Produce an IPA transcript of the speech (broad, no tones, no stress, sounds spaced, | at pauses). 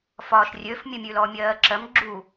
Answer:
f ɒː ʃ rʲ ø f mʲ ə mʲ ʉ l ɔ mʲ ɜː ǁ ɜ m ɡ͡ǁ u